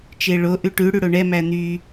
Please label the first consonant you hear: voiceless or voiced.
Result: voiceless